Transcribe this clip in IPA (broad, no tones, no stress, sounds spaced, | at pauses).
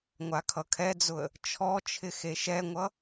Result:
ŋʷ a kʰ ʌ kʰ ɛ d͡z ʊ ə̯ | t͡ʃʰ ɔ t͡ʃʰ ɪ x e ʃ ɛ ŋʷ ʌ